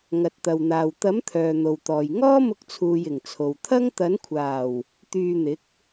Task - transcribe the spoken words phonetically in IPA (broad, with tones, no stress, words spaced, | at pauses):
ŋɐ˨t̚t̪ɐ˨wn̪aː˨w t̪ɐ˨˥m t̪ʰœː˨n̪o˨wt̪ɔː˨j ŋɔː˥mʊ˧k̚t͡sʰuː˨j ɪ˨˩ŋt͡sʰo˨w t̪ʰɐ˥ŋ t̪ɐ˨˥nkʷʰaː˨˩w | t̪yː˧n̪ɪ˨˥k̚